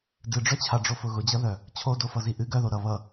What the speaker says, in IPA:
dɨɖ͡ʐœt͡ɕʰaɖ͡ʐo fʊɣʊd͡ʑʌðœ | t͡ɕʰodofʌzi ʔɨ ɡœðo ɾʌ βʌ

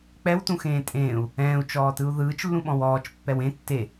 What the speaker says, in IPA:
k͡pɛwtũxẽː tʼẽːu̯ | ɛ̃ːu̯t͡ʃɔːtɯu̯ ðɯːt͡ʃlːũɓɔ̃w ɔːt͡ʃpːɛw ẽ tːe

